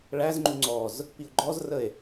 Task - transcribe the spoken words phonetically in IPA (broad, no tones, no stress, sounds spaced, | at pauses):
ɭ æ z ŋ͡ǃ u ŋ͡ǀ ɔ z | p i o̯ ɡ͡ǃ ɔ z r ə e̯